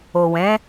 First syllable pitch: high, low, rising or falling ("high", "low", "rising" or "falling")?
low